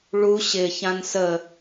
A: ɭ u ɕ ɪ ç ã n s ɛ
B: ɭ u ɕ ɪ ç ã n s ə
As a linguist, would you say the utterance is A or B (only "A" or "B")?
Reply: B